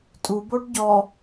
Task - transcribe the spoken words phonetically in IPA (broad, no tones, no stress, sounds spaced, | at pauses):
tʼ u b o ɖ ɟ ɔ